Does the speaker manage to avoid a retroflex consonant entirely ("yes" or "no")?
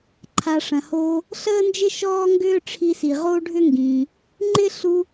no